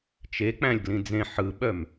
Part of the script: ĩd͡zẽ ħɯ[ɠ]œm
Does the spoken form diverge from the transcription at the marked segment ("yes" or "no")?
yes